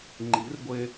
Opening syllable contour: rising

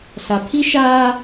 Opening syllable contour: low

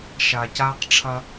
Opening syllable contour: low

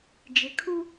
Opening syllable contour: low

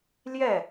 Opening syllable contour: falling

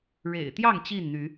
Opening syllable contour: low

